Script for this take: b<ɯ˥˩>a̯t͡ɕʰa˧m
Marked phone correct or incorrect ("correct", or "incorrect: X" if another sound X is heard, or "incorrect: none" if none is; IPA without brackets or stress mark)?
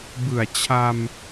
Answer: incorrect: ɯ˨˩